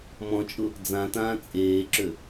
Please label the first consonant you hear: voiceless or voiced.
voiced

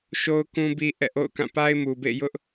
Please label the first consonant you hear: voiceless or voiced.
voiceless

